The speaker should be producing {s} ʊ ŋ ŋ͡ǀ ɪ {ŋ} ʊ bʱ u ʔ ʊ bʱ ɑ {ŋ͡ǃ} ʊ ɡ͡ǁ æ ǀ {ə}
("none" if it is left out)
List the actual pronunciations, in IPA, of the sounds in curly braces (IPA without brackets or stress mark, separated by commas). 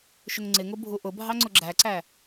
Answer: ʃ, ŋ, ŋ͡ǀ, æ